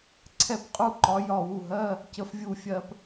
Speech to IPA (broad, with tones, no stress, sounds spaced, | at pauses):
ǀʰ ɛ˧ p qʼ u˧ ǃ ɒ˩˧ j ɒ˧˩ w u˧˩ ɦ ɜ˧˥˧ | c ə˩˥ f vʲ u˧˩ fʲ ɜ˧ p